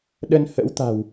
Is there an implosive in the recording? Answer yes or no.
yes